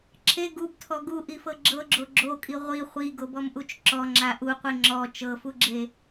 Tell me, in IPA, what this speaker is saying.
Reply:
ǁʰ e ɡ u b tʰ ɔ ɡ u ʔ i f ɤ ɡ͡ǁ ɤ ɡ͡ǁ o ɡ͡ǁ o kʼ i ʁʷ i χʷ i ɡ o b ɔ m ʔ u t͡ʃ ǁ ɔ ŋ͡ǁ a ʔ u qʷ i ŋ͡ǁ ɔ t͡ʃ ɤ f u ɡ͡ǁ e

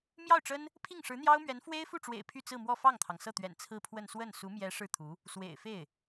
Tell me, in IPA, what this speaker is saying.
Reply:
m j ɑ˥˩ ʊ̯ ʈ͡ʂ ə˥ n | pʰ i˥˩ ŋ ʂ ɻ̩˧˥ n̪ j ɑ˥ ʊ̯ m ɥ ɛ˧˥ n f w e˥ ɪ̯ f u˥˩ ʈ͡ʂ w ḛ˨˩ ɪ̯ pʰ y˥˧ t͡s ɹ̩˥˧ m w ɔ˥˧ f ɑ˥˩ ŋ t̪ʰ ɑ˩ ŋ s ɤ˥˩ t̪ ɥ ɛ̰˨˩ n t͡sʰ ɹ̩˥˧ pʰ w ə˥˧ n s w ə˥˩ n s u˧˥ m j ɛ˧˥ ʂ ɻ̩˥˩ t̪ʰ u˧˥ | s w ḛ˨˩ ɪ̯ f e˥˩ ɪ̯

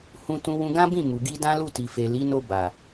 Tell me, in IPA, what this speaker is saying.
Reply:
h ũ˧ t ũ˧ w ũ˧ ɡ ã˦ b ĩ˦˨ m u˨ ɡ i˧ d ã˦ l u˦˨ t i˨ f e˨ l i˨˦ n o˧ b a˨

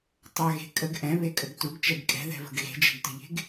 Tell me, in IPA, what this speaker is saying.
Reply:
tˤ a ɣ e̤ kʼ ə ɡ ʔ ɛ̃ β e kʼ ə ɡ t u ɡ t͡ʃ ɛ ɡ kʼ ɛ̤ ð ɛ̤ v ə̤ ɡ ɣ e̤ d͡ʒ ɛ̤ ɡ t ə̤ ʎ e̤ ɡ

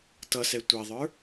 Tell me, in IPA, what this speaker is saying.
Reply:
t ʌ s ɛ tʷ ɛ ðˤ ə˞

